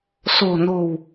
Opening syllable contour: low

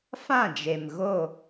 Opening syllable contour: falling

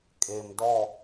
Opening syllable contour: low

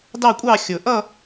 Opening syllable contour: falling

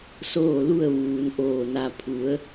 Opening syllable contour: falling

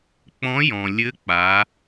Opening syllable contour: rising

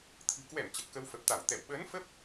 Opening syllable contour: low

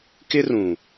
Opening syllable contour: high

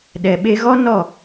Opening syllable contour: low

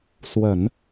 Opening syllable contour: low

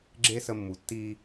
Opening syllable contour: high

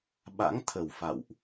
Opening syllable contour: rising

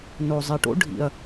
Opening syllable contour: low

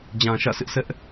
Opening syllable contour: low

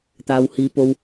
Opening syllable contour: low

